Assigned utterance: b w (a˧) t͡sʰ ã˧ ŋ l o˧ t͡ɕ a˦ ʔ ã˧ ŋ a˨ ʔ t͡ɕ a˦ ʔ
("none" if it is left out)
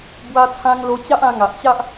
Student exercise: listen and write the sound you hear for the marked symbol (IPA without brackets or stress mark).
a˧